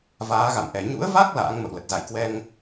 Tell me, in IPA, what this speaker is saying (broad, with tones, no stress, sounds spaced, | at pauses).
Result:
v aː˨˦ ɣ a̰˧˨ m ʔ ɛ˨˩ ɲ ṵ˧˥ ə̯ v a˦˥ k̚ l a̰ː˧˥ ŋ m ə̰˧˨ w l ə˨˩ t̚ z a̰˧˨ j k w ɛ˧ ŋ